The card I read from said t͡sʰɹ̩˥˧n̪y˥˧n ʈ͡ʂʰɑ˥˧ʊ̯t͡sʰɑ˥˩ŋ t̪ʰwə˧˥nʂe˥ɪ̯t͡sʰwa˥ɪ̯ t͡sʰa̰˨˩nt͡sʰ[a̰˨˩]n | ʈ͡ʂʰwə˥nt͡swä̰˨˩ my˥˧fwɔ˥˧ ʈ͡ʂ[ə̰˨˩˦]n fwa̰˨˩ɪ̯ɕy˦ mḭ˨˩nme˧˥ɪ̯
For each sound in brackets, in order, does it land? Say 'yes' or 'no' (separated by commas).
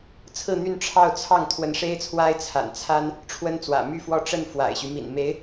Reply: no, no